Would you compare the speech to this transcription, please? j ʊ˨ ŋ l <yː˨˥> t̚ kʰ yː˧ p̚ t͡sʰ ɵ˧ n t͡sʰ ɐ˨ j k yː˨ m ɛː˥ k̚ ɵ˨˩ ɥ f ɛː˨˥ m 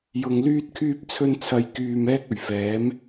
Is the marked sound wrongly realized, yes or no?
yes